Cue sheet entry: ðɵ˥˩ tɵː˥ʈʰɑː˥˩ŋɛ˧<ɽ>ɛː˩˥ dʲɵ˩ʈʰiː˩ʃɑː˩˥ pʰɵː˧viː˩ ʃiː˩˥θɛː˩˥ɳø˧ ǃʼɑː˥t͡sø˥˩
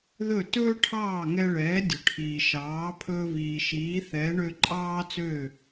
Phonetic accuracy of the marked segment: incorrect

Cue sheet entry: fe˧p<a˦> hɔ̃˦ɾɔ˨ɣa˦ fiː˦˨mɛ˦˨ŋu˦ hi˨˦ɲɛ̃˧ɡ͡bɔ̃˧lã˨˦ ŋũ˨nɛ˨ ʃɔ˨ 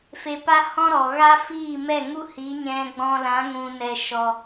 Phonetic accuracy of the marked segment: correct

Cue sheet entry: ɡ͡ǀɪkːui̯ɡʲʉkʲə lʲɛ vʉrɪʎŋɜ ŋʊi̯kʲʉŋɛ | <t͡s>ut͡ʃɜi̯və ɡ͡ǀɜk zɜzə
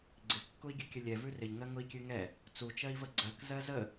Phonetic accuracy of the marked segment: correct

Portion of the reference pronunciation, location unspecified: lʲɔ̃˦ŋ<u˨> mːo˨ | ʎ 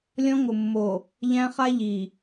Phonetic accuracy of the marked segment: incorrect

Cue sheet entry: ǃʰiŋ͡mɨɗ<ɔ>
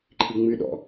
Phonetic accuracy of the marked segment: incorrect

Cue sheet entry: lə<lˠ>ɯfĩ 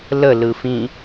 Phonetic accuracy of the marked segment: incorrect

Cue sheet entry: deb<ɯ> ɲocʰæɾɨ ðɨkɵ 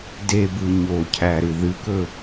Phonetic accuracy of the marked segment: correct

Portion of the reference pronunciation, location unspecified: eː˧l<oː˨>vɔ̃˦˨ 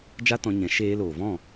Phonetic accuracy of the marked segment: correct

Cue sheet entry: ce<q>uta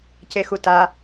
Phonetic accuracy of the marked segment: incorrect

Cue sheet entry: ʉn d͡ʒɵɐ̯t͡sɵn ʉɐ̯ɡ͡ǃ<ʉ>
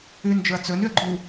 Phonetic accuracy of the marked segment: incorrect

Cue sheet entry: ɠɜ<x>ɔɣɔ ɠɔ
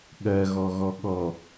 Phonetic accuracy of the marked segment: incorrect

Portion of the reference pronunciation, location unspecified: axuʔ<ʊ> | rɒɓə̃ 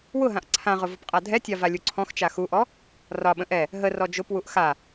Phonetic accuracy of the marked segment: incorrect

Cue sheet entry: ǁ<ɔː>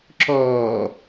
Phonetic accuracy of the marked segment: correct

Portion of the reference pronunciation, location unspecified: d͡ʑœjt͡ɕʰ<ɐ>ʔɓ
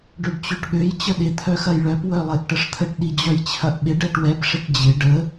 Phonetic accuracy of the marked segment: correct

